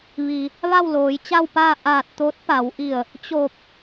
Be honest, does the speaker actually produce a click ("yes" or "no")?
no